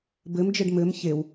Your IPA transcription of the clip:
b ɘ m d͡ʒ ɘ ɖ m ɘ m ç e w

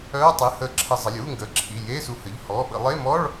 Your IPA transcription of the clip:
œː˧˥˧ tˤ ɨ˩˧˩ h ə˧˩˧ ǁʰ ə˧˩˧ zˤ ə˩˧˩ lʲ uː˧˥˧ ŋ ɡ əː˩˧˩ ǁʰ i˩˧˩ j eː˧˥˧ s u˧˩˧ h ə˩˧˩ ʎ h ɔː˩˧˩ ɓ ə̰˧˩˧ lˠ e˧˥˧ m ɔ˧˥˧ ɭ

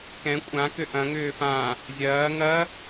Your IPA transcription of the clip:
k ɛ̃ kʷʼ ã k ʏ ʔ ɐ̃ ŋ ʏː f ã | zʲ ɐː ŋ ɐ

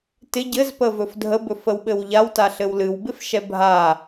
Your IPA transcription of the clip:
t ɪ ɟ ɘ z p ə v ɵ f dʱ ə b ɵ f ə w ɓ ɘ w ʎ a w t a ɬ ɘ w l ɨ w b ɪ f ʃ ɛ bʱ a

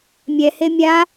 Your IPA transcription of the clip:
mʲ ɛ h e mʲ a

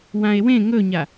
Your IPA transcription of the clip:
w ã e̯ w ẽ ŋ ɵ ɲ a

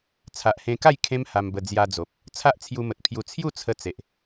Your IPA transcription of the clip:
t͡sʰ a˨ ʔ h ẽ˧ k a˥˧ j kʰ ẽ˦ m h a˧ m b ə˧ d͡z j a˧ d͡z o˨ p̚ | t͡sʰ a˦ ʔ t͡sʰ j u˧ m ə˨ t̚ pʰ j u˧ t͡sʰ j u˥˧ t͡sʰ ə˧ t͡s e˨ ʔ

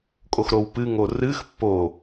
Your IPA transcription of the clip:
kʼ o x ɾ o w p ɨ ŋ o r ɨ x pː o

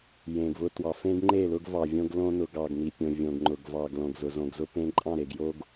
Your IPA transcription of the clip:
j ẽ˨ ɡ v ʊ˦ t w ɑ˨ f ẽ˦ ɡ ŋ͡ǃ e˦˨ l ʊ˦ ɡ v ɑ˨ vʲ õ˦ ɡ l õ˦ n ʊ˨ ɡ ɑ˨ ɡ n i˨ pʲ õ˨ vʲ õ˨ ɡ ŋ͡ǃ ʊ˨ ɡ v ɑ˨ ɡ l õ˨ ɡ z ʊ˨ z õ˨ ɡ z ʊ˦ p ẽ˦ ǃʼ ɑ̃˦˨ ɾ e˨ ɡ j o˦ ɡ

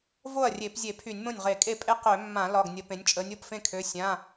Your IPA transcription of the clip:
v o˥˩ ɐ̯ rʲ e˧˩˧ p zʲ e˧˩˧ pʰ y˧˩˧ nʲ m õ˥˩ nʲ ʁ e˧˩˧ kʼ e˥˩ pʼ e˦ q ø˧˩˧ mː ã˧˩˧ l ɒ˩˧˩ ɡ nʲ ə˧˩˧ p ẽ˩˧ nʲ t͡ʃʼ ə˩˧ nʲ o˩˧˩ p f ẽ˥˩ kʰ ø˩˧˩ sʲ ã˩˧˩

